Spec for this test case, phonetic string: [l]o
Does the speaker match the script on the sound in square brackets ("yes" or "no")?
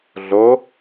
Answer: no